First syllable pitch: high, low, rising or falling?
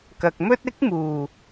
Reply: low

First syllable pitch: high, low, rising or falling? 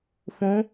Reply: rising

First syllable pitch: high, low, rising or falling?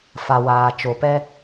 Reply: low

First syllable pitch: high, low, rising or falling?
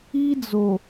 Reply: high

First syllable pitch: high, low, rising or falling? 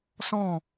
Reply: falling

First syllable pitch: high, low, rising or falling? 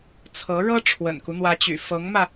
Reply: rising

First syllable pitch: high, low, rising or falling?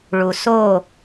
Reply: low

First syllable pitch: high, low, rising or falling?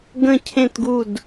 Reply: falling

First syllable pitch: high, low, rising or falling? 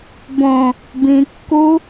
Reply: low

